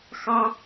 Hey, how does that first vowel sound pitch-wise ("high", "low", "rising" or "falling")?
high